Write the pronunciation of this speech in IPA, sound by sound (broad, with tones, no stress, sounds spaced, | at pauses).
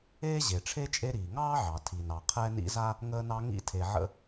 eː˥ ʑ e˩ ʈ͡ʂʰ e˥ t͡ʃʼ e˦ ɾ iː˩ ŋ ɑː˥ ʕ ɑ˩ tʰ i˩ n ɑ˩ qʰ ɛ˦ n ḭ˦ z a˥ | ŋ əː˦ n ɑ˦ ŋ ḭ˥ tʰ e˨ ʕ ə̰˦